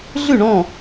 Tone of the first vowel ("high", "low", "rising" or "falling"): falling